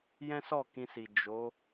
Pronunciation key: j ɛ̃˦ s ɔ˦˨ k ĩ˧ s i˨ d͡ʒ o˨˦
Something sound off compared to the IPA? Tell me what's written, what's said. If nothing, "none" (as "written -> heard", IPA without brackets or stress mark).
none